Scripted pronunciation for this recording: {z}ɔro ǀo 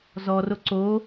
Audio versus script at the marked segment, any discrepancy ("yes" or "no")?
no